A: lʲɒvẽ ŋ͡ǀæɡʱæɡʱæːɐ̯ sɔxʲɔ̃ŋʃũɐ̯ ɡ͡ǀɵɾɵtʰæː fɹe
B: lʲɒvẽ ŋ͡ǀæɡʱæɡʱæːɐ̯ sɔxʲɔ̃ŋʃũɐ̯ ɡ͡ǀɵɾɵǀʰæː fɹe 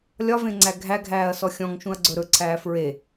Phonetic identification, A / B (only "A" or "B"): B